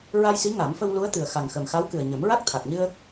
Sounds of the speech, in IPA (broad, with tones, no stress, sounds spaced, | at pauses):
ɹ a˧ j s i˧˥ ŋ a˨˩˦ m f ə˧ w l u˧˥ ə̯ t̪ ɨ˨˩ ə̯ x a˨˩ ŋ x ə˨˩ m x a˧˥ w k ɨ˨˩ ə̯ ɲ ə˨˩˦ m ɹ a˦˥ k̚ t̪ʰ a˨˩ k̚ ɲ ɨ˧ ə̯